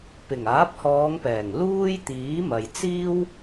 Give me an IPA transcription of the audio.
p ɪ˨˩ ŋ aː˨˥ p̚ h ɔː˨˧ ŋ p ɛː˨˩ ŋ l uː˥ j t̪ iː˨˥ m ɐ˨ j t͡s iː˥ w

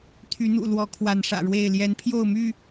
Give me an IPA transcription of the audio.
t̪ʰ y˨˦ n̪ ṵ˨˩ l w ɔ˨˦ kʰ w a˨˦ n ʂ ä̰˨˩ ɻ w e˥˨ ɪ̯ l j ɛ˨˦ n pʰ j o˥˨ ʊ̯ m y˥˨

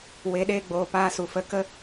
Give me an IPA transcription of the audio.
w e˨˦ ɗ eː˧ ɡ͡b oː˨ p aː˧ s u˨ f ə˧ k ə˦

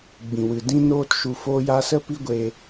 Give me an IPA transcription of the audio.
ɡ͡b ĩ˨ w ɨ˨ d ĩ˦ n oː˦ t ʃ u˧ f oː˦ j a˦ s ə˦ p i˦ ɡʷ e˧

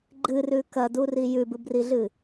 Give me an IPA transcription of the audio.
ɡ͡ǃ ɨ r ʉ k ɐ d u r i j ʉ b ɨ b r i ɮ ɨ

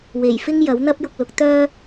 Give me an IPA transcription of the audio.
w e˨˩ j f ɪ˥ ŋ j ɐ˨˥ w n̪ ɐ˥ p̚ j ʊ˧ k̚ l ʊ˨˥ k̚ t̪ œː˥

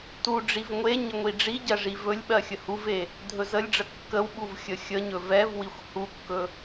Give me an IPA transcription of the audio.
t u ɖ͡ʐ i v ŋʷ e ɲ ə ŋʷ i ɖ͡ʐ i ɟ ɜ ʐ i v ɵ lʲ ɓ ɜ xʲ ə h u v e | dʱ ɵ z ə lʲ ɖ͡ʐ ə kː ə w ɓ u v xʲ ə xʲ ə ɲ ɵ v ɛ v w i xʷ h u kː ɵ

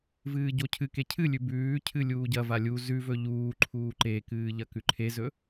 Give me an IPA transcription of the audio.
v ɨː ɟ o cʰ ɨ k e cʰ ɨ lʲ ʉ b ʉː cʰ ɨ lʲ uː ɟ ɐ v a lʲ u z ʉ v ɵ ʎ uː ǃʰ uː ǃ e k ɨː ʎ ɐ k ʉ ǃʰ e z ɵ

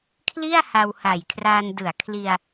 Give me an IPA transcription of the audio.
kʰ l i˥˩ a̯ h a˧ w h a˨˩ j kʰ r aː˧ n d ɯ˩˦ a̯ kʰ l i˧ a̯

